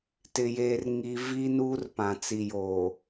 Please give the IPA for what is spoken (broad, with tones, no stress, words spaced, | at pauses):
tɪ˨jeː˨rŋi˨ vi˦ nuː˦rpã˨t͡si˨joː˨